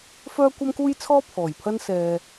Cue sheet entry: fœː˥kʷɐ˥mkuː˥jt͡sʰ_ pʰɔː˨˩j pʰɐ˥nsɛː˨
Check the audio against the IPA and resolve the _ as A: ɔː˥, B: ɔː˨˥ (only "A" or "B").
A